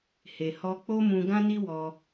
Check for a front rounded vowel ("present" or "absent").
absent